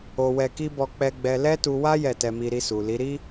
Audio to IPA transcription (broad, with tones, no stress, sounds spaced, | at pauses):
o˧ w ɛ˧ k i˦ b ɔ˧ k͡p ɛ˧ ɡ͡b ɛ˧ l ɛ˦ t u˧ w a˦ j ɛ˦˨ t ɛ˧ m i˧ ɾ i˧ s u˨ l i˨˦ ɾ i˦